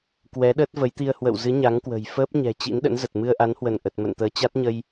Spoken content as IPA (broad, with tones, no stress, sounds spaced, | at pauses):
k w ɛ˨˦ ɗ əː˦˥ t̚ v ə˨˦ j t̪ i˧ ə̯ h w ə̰˧˨ w z ɨ˨˦ ɲ a˨˦ ŋ k w ə̤˨˩ j f əː˦˥ p̚ ɲ ɛ̤˨˩ t͡ɕ ḭ˧˥ n ɗ ə̰˧˥ n z ə˨˩ t̚ m ɨ˧ ə̯ ʔ a˨˦ n h w ə˧˩ n ʔ ə˨˩ t̚ m ə̰˧˨ n t̪ əː˨˦ t͡ɕ a˦˥ t̚ ɲ ə˧ j